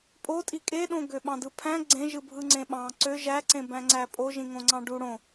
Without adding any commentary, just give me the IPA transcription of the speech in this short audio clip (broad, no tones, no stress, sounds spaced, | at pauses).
pʼ o tʼ i kʼ e ɗ õ ɡ ø ɓ ɑ̃ d ɯ pʰ æ̃ ɡ͡ǀ ẽ ʒ ɯ bʱ ɯ ŋ͡ǀ ẽ ɓ ɑ̃ ǀ ø ʒ æ ǀ ẽ b æ̃ ŋ͡ǀ æ pʼ o ʒ ĩ ŋ õ ŋ͡ǀ ɑ̃ ɖ u ɽ õ